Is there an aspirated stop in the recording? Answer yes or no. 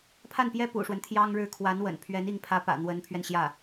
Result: yes